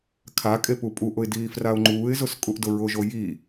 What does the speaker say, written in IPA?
kʰ a kʼ e p u pʼ u ʔ ʊ ɪ̯ d iː f r a ʊ̯ ŋ͡ǃ uː ɪ̯ z ʊ s kʼ u ʔ d ʊ ɹ ʊ ʒ o j i

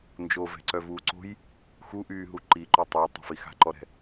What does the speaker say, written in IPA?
n d͡ʒ o v ɛ̤ ǀ œ v uː ǀ o̤ j | x u ʔ yː ɦ u ǃ i ǃ o tˤ iː tˤ ɛ̤ f i x a̤ ǃ ɔ ɾ ɛ̤

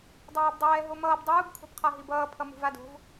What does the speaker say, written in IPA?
dˤ aː b dˤ ɛː ɦ o m ʌː b dˤ uː b kʰ o̤ b qʰ a ɦ i b ʌː pʰ ʌ m ṳ v a d o̤ v

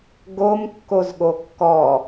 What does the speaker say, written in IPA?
ɡ o m kː o z ɠ o kː ɔ

